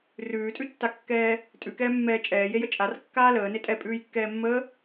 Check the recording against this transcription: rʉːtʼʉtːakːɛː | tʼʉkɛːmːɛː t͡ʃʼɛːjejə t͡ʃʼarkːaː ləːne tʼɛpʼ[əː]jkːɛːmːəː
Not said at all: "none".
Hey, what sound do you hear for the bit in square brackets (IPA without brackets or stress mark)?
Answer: ʉː